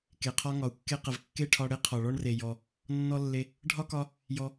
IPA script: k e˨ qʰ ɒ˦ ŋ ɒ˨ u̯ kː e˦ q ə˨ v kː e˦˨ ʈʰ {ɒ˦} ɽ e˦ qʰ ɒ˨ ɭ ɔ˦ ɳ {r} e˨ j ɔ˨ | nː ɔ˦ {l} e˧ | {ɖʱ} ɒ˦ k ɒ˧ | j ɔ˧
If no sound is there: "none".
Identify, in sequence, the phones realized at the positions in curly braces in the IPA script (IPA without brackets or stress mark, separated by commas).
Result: ɒ˧, r, lː, ɖʱ